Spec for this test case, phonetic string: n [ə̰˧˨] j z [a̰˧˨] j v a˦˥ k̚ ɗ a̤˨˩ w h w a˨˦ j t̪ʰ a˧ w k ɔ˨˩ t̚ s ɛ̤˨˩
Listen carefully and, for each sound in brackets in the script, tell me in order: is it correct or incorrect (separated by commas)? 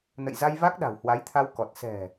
correct, incorrect